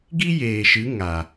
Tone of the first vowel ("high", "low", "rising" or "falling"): high